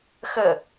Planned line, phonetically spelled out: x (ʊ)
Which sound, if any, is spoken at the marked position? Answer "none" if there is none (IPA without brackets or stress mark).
ə